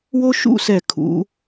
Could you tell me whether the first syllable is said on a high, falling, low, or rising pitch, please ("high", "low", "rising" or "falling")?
high